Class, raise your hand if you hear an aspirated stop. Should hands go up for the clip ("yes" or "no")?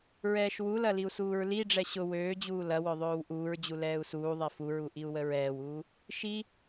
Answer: no